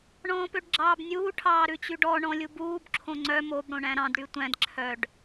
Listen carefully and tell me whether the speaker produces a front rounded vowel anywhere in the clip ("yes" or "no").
yes